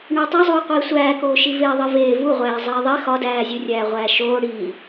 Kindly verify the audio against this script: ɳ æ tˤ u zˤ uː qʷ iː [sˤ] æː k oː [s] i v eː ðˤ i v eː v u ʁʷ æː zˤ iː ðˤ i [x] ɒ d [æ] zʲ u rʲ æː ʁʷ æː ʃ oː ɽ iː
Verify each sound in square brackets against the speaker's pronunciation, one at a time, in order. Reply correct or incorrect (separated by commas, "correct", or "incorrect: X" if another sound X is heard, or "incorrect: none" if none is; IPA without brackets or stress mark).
incorrect: sʷ, incorrect: ʃ, correct, incorrect: æː